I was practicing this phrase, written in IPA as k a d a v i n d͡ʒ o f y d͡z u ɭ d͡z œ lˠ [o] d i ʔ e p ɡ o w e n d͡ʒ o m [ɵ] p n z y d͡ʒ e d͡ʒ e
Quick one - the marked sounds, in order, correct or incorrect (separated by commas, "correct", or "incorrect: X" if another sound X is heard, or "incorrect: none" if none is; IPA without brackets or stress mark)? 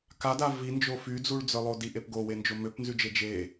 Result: correct, incorrect: ø